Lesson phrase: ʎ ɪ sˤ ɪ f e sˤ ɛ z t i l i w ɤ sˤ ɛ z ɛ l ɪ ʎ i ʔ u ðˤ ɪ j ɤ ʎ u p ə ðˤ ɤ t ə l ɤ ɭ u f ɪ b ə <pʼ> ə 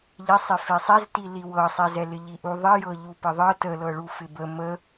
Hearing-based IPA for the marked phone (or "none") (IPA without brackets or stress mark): m